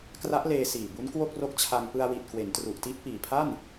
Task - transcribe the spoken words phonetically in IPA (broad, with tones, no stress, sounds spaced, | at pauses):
k r a˦˥ ʔ l eː˧ s iː˨˩ b u˦˥ n k w o˥˩ k̚ r o˦˥ k̚ t͡ɕʰ a˧ ŋ p ɯ˧ a̯ w i˨˩ t̚ k w e˩˦ n t r u˨˩ ʔ t i˦˥ ʔ p iː˨˩ pʰ a˥˩ n